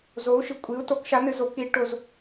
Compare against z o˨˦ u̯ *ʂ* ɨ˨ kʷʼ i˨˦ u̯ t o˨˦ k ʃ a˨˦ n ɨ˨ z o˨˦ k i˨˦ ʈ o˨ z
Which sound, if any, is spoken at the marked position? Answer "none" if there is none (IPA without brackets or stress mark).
ʃ